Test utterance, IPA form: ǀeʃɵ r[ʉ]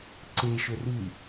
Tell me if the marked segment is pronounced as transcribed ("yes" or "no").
yes